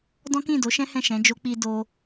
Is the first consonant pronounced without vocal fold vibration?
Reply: no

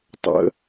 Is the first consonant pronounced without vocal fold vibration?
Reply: yes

